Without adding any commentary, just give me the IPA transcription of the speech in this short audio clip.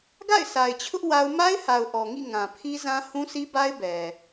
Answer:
ɡ a̰˦˨ ɪ̯ sʰ a˨ ɪ̯ t͡ɕʰ ʊ˦ ʔ w a˦ ʊ̯ m a˦ ɪ̯ h a˨ ʊ̯ ʔ ɔ˨ ŋ ḭ˦˨ ŋ ã˨ pʰ i˦ z ã˦ h ũ˦ sʰ i˦ b a˦ ɪ̯ b ɛ˨

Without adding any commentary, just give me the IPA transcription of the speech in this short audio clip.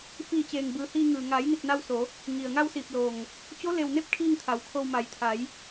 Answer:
f iː˧˩ t͡ɕ eː˩ ŋ b ɯː˩˧ h iː˧ ŋ ɯː˩ ŋ a˩˧ j n i˧˩ t̚ n a˧ w s o˩˧ | ŋ i˩ ə̯ ŋ a˧ w s iː˧˩ p̚ l o˧˩ ŋ | t͡ɕ o˧˥ l e˧˩ w n e˧˥ p̚ kʰ iː˥˨ ŋ t̪ʰ a˩ w kʰ o˧ w m a˩˧ j t̪ʰ a˩˧ j

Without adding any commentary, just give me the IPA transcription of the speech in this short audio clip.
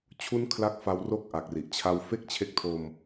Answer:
t͡ɕʰ u˦˥ n kʰ l a˦˥ k̚ f a˧ w r o˥˩ k̚ ʔ a˨˩ k̚ r i˨˩ ʔ t͡ɕʰ a˧ w f e˥˩ k̚ t͡ɕʰ e˦˥ k̚ tʰ o˧ m

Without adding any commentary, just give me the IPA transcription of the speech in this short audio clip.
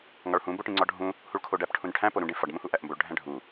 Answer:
ŋ ɒ ɭ h ũ b o ʈ ĩ ŋ͡ǀ ɒ ɖʱ ũ | h u ɭ kʰ o ɖ æ p ʈʰ ũ n ʈʰ æ̃ p o ɾ ũ ɖ ẽ f ɒ ɖ m ũ h u ʔ æ ʔ m b o ɭ ɖʱ æ̃ ɖʱ u

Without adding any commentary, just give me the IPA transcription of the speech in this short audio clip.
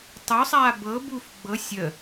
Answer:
tˤ u sˤ aː b ɤ b u f ɡ͡b ɤ sʲ ə

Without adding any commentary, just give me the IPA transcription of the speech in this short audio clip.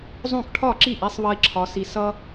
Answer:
zˤ õ˥˩ k ʈʰ ɒ˥˩ ǁ i˥˩ ʔ i˥ sˤ β ʌ˥ i̯ ǁʰ ɒ˧ s i˧ s ʌ˥

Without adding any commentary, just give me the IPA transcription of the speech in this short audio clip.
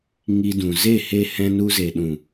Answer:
ŋ i˧ d ũ˨ z e˦˨ h e˧ h ɛ̃˧ n u˧ z e˨ ɗ ũ˨

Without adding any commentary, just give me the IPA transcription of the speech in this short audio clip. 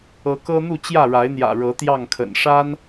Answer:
ɤ˨˦ k ɤ˦ n̪ u˥˨ t͡ɕ j ä˥˨ ɻ a˨˦ ɪ̯ n̪ j ä̰˨˩ ɻ ɤ˨˦ t̪ j ɑ˥˨ ŋ kʰ ə̰˨˩ n ʂ a˦ n

